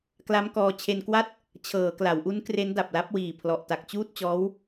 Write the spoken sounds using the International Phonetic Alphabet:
k l a˦˥ m k ɔː˧ t͡ɕʰ e˧ n k w a˥˩ t̚ | t͡ɕʰ ɤː˩˦ k l a˩˦ w ʔ u˦˥ n k r e˦˥ n d a˨˩ p̚ l a˦˥ p̚ w iː˨˩ pʰ l ɔ˨˩ ʔ t a˨˩ k̚ t͡ɕ uː˥˩ t̚ t͡ɕ ɔː˦˥ w

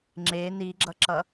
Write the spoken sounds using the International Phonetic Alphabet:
ŋ͡ǁ e n i ɡ͡ǁ ʌ ǁ ʌ

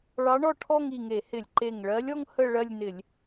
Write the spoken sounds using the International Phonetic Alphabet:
ɭ ɑ˧˥ ɳ ɔ˥˧ ʈʰ ɔ˥˧ ŋ i˧˩ ŋ e˧˩˧ h ɪ˧˩˧ lʲ ǃ e˧˩ ŋ ɭ ɜ˧˥ lʲ ɔ˥ ŋ h ə˥˧ ɭ ɜ˥˧ lʲ n ɪ˧˩˧ lʲ

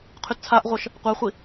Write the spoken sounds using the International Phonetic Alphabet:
qʰ y t t͡sʰ a ʔ ʁʷ œ ʃ | qʷ a χʷ i

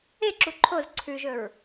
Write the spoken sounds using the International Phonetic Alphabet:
e ǁ u ǃʰ o z ǀʰ ʉ ʒ ɵ ɹ

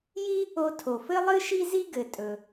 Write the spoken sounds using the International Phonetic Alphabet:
j i˥ | o˧ tʰ o˩ f ɘ˥ lˠ ɨ˥ ʃ i˥ z i˥ ɡ ɘ˩ tʼ ɵ˩

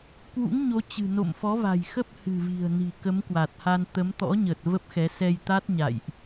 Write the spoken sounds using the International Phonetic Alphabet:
k w ṵ˧˥ ŋ ɲ o˨˦ t͡ɕ ɨ̤˨˩ n o̰˧˨ m f ɔ˨˦ v a̤˨˩ j x ə˦˥ p̚ h ɨ̤˨˩ v i̤˨˩ ə̯ n i̤˨˩ k ə˨˦ m k w a˨˩ t̚ h a˧ n t̪ ə˨˦ m t̪ ɔ̰˧˥ ɲ ə˨˩ t̚ v ə˦˥ p̚ x ɛ˨˦ s ɛ˧ j t̪ a˦˥ t̚ ɲ a̰˧˨ j ʔ

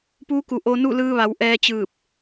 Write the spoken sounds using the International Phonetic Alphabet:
p uː˧˥ k u˧˩ ʔ o˧ n u˥˨ l ɯː˧ ʋ a˩˧ w ʔ ɛː˧ t͡ɕ ɯː˧˩ p̚

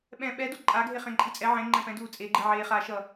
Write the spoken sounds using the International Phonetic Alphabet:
ɓ ɛ̃ ɓ ɛ d o ǃʼ a ɡʱ e χ ɛ̃ ǃʼ i t͡sʼ ɛ ʕ ẽ ŋ͡ǃ ɛ̃ p ɛ̃ d uː t͡sʼ e ɡ͡ǃ i ʕ eː χ aː ʃ ʌ

